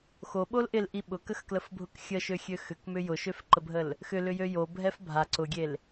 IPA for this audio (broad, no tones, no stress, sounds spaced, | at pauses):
x o ɓ o l ʔ ɪ l ʔ i ɓ ʊ k ə x k l ə f bʱ ʊ k xʲ ə ʃ ø xʲ ø x ʏ k m ʏ j ʊ ʃ ø f ǃ ə bʱ ə l | x ʏ l ʏ j ø j o bʱ ɛ f bʱ a ǀ ʊ ɡʲ e l